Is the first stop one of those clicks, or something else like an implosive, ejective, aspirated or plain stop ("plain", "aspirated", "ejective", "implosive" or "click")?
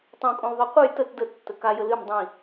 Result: plain